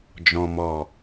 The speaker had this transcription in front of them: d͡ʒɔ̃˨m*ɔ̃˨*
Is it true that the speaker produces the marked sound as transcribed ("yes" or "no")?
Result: no